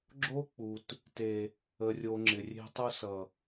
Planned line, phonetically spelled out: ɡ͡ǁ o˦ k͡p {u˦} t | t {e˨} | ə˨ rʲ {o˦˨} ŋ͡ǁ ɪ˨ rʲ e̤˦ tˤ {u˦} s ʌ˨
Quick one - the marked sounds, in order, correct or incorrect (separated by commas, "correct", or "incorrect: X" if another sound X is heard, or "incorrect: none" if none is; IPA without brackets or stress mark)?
incorrect: u˨, correct, incorrect: o˨, correct